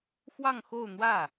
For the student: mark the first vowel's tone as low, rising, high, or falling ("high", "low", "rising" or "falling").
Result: falling